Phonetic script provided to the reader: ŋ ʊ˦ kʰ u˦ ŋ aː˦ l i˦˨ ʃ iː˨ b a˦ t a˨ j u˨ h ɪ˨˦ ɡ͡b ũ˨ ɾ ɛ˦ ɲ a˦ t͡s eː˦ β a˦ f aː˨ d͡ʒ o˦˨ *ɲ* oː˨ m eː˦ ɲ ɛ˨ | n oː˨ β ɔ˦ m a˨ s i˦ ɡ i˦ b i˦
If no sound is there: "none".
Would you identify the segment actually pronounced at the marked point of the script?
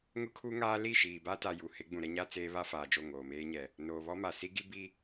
ŋ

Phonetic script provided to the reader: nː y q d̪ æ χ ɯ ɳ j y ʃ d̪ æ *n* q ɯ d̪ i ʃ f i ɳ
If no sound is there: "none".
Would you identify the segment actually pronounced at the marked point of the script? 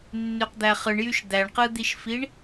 ɳ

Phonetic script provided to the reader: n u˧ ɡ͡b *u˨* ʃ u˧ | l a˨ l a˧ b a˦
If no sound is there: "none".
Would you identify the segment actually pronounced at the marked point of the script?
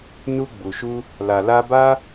u˨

